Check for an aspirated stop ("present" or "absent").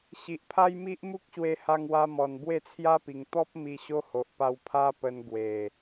present